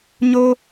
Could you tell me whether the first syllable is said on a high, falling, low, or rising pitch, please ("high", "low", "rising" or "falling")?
high